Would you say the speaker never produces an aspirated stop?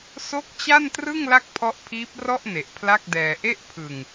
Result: no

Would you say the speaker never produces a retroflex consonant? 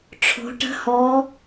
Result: no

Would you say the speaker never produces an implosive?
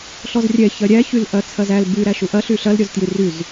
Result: yes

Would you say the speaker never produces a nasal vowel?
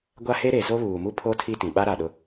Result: no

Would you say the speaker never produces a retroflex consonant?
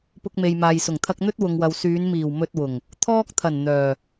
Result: yes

